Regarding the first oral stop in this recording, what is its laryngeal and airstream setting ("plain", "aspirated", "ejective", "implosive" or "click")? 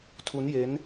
aspirated